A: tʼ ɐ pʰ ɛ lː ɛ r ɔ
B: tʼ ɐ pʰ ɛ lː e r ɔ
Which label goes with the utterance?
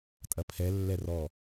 A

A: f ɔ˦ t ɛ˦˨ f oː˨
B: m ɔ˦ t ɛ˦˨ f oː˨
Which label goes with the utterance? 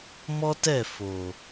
B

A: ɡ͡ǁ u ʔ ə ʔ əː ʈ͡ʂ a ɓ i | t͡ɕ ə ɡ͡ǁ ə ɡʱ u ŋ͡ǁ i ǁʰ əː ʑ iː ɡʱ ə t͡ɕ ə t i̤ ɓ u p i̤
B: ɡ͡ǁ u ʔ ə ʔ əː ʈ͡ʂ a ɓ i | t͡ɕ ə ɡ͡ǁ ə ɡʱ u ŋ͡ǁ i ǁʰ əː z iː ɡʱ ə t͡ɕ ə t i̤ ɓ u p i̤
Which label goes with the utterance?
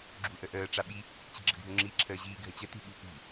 A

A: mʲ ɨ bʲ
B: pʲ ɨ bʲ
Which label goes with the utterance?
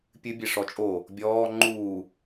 B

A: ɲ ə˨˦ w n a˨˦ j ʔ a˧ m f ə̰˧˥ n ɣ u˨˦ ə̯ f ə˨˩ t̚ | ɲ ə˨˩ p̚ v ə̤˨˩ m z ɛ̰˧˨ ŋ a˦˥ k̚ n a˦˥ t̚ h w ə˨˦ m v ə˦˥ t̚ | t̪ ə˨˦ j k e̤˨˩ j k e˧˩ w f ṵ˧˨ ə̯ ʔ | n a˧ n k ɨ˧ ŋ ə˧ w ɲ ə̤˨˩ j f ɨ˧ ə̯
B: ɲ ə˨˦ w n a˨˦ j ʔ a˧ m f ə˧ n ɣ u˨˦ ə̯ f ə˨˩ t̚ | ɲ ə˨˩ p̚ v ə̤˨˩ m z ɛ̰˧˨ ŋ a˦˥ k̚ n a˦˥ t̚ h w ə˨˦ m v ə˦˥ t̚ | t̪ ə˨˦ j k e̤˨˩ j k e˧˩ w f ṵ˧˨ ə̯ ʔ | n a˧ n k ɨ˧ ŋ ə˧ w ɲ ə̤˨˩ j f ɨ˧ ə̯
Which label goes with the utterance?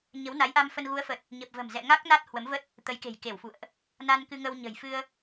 B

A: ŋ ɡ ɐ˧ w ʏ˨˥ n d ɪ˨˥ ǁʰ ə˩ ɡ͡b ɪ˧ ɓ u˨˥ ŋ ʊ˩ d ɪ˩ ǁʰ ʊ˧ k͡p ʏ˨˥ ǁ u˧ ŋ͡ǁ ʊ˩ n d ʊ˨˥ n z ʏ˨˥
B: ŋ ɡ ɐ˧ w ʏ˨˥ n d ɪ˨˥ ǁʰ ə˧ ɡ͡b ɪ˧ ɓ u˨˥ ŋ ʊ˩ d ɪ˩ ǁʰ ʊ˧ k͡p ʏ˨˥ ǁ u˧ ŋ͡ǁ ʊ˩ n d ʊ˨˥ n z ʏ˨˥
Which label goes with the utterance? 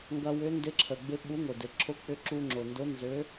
A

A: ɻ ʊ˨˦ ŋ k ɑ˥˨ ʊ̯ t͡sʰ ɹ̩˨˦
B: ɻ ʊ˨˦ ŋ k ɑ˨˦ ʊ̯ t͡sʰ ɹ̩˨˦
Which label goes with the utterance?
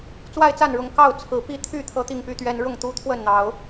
A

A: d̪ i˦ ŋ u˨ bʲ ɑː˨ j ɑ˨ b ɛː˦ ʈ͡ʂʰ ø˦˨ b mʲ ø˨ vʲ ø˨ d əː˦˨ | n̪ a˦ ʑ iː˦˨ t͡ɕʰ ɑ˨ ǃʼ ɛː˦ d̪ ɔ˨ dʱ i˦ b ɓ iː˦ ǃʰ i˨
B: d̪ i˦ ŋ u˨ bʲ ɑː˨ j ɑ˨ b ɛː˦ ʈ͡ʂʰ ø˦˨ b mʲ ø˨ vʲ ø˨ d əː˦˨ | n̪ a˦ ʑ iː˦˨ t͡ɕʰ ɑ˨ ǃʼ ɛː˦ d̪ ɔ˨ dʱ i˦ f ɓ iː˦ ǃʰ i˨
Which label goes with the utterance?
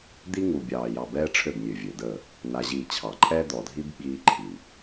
A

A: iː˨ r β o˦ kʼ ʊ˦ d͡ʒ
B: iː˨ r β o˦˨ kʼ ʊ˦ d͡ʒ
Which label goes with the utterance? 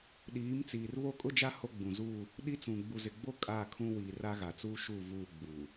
B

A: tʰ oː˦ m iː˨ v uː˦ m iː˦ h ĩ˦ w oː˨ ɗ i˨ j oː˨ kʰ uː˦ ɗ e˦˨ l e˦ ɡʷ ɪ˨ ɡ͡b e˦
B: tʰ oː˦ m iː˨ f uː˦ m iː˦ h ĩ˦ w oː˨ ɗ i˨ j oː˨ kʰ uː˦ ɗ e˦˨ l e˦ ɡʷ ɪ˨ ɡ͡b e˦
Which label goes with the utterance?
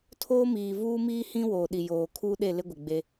A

